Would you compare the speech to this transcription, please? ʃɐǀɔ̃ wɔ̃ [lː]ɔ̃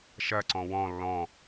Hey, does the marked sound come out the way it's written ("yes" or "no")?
yes